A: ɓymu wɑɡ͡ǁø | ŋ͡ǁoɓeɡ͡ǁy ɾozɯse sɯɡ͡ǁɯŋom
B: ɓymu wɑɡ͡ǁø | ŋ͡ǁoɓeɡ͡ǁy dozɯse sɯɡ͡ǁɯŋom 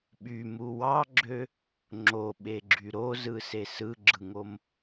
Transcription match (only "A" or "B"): A